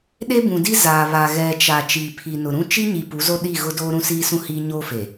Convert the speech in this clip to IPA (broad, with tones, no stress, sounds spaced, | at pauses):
ɗ e˦ b ũ˨ d i˦ z aː˨ β a˨ ɣ ɛ˨ t͡ʃ a˨ t͡ʃ iː˨ pʰ i˨ n ʊ˨ ɾ ũ˦ t͡ʃ i˦ ɲ i˨ p u˨˦ z o˦ ɗ i˦˨ ɣ ʊ˦ d oː˦ ɾ ũ˦ s iː˦ s ũ˦ h iː˦ ɲ oː˦ f e˨